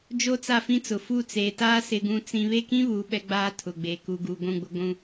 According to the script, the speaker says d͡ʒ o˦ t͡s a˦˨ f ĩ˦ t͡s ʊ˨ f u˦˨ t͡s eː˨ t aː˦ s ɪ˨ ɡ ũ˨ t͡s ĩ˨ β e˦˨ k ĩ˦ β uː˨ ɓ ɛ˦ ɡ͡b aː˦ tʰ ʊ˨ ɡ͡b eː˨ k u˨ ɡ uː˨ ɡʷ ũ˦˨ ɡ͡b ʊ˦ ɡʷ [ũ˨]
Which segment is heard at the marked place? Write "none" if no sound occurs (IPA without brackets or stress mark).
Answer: ũ˦